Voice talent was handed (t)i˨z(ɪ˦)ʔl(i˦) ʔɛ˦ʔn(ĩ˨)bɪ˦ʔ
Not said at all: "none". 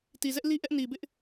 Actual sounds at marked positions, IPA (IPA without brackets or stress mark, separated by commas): t, ɛ˦, i˦, i˨